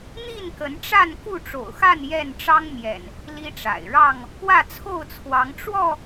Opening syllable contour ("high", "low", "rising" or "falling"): falling